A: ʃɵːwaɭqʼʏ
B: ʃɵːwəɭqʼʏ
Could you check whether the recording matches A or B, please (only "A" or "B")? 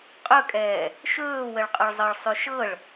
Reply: B